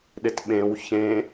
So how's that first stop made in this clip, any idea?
implosive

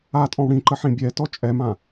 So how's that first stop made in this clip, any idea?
ejective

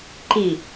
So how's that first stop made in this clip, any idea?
click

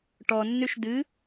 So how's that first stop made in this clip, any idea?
plain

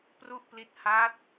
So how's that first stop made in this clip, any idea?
plain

